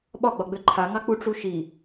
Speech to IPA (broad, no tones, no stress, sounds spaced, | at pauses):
ɓ ɒ ɡ͡b ɒ ɡ͡b ø ǃʰ a ŋ ɑ k͡p u ʈ͡ʂ u ʃ i